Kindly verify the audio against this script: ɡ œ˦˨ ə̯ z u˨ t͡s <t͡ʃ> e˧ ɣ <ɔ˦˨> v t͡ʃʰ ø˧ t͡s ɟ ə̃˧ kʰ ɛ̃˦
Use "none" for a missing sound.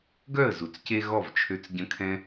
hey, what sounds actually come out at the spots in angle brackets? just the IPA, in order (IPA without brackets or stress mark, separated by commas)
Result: c, ɔ˦˨